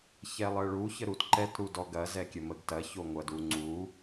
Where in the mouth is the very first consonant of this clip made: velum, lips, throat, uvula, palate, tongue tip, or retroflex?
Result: palate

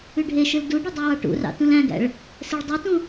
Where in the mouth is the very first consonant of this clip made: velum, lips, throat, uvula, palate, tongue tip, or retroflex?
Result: retroflex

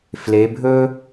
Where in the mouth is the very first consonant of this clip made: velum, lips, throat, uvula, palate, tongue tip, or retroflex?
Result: lips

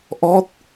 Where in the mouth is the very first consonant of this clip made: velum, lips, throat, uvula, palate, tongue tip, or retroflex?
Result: throat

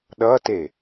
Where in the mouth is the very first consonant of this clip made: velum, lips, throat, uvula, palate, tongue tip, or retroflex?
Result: tongue tip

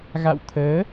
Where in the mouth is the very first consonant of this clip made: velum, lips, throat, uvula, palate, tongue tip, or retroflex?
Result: velum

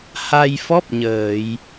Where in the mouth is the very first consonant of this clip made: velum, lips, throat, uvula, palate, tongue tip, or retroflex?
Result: throat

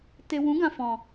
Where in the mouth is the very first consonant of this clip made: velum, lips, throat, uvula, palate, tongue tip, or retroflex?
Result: tongue tip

